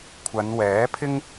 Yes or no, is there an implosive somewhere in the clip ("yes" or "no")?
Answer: no